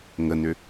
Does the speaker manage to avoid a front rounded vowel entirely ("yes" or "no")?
no